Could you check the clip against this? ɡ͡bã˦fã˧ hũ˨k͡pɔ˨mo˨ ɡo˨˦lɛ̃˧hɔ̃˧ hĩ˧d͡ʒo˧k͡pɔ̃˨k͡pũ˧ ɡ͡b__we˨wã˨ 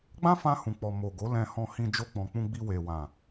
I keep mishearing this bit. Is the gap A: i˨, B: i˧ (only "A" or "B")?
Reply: B